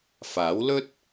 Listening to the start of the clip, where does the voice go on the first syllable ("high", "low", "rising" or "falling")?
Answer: rising